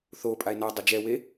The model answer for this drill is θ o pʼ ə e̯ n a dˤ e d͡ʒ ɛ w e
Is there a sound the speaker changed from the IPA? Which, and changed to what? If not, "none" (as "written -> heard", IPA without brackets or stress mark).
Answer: ə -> a